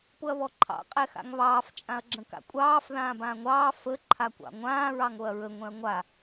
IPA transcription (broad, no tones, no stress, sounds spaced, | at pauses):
p ʊ ɐ̯ β ɔ ǃʰ ɑ̰ qʼ ɛ x a̰ ŋ β ɑː f t͡ʃʼ ã ɐ̯ ɡ͡ǁ ə̃ k a̰ kʷʼ ɑː f ð ãː b ãː ŋʷ ɑː f ə ǃʰ a kʷ ɑ̰ ŋʷ ãː ɹ ɑ ŋ o ɐ̯ ɹ ə ŋʷ ɛ̃ ɐ̯ ŋʷ a